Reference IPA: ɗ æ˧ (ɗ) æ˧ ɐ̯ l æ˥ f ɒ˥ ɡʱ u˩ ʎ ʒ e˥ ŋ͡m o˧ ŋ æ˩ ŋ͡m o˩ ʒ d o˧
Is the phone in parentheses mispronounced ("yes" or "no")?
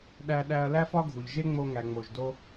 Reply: no